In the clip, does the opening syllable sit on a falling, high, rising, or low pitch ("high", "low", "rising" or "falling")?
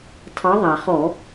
rising